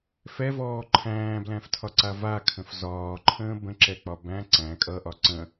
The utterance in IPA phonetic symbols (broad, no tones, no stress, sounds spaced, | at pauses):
f ɛ v ɔː ǃʰ æ̃ː b l æ̃ f tʰ ɒ ǀ a v a kʰ ə̃ f z ɒː ǃʰ ə̃ː b ə̃ ǁ ɛ k͡p ɒ b æ̃ ǀ æ̃ kʼ ʌ ʔ ɒ ǀ ə̃